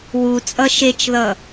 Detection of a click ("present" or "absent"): absent